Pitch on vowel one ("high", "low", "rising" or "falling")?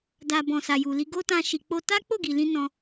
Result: low